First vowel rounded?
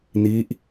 no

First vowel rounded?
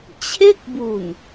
no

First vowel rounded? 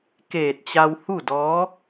no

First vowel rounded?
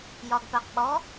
yes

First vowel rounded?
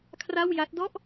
no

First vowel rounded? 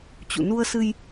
yes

